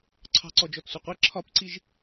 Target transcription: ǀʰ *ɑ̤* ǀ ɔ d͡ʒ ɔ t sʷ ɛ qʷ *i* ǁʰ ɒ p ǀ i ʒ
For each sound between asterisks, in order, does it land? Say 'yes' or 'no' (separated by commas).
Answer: yes, yes